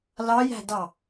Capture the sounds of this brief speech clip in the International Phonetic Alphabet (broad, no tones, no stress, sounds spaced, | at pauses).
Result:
l ɑ j æ̤ d ɑ